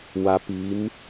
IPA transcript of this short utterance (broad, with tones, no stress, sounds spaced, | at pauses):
w a˦ p iː˨˦ m